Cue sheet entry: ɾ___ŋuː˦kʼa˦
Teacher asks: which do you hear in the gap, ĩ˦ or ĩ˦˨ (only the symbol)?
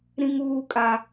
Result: ĩ˦